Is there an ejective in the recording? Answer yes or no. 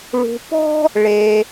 no